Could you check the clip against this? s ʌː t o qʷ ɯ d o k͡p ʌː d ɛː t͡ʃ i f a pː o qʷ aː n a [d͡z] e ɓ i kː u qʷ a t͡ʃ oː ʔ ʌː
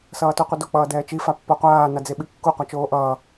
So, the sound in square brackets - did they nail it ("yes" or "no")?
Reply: yes